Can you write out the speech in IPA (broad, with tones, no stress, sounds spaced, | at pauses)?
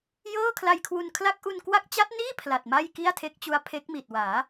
j ɤː˥˩ kʰ l a˧ j kʰ w u˧ n kʰ l a˥˩ k̚ ʔ u˧ n k w a˦˥ k̚ t͡ɕ a˦˥ t̚ n iː˥˩ pʰ l a˨˩ t̚ m a˥˩ j k i˥˩ a̯ tʰ e˦˥ k̚ t͡ɕ u˦˥ a̯ pʰ e˦˥ k̚ m i˨˩ t̚ w aː˩˦